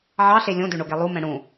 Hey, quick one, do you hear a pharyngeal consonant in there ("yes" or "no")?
yes